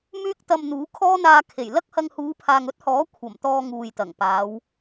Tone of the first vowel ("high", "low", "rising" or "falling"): high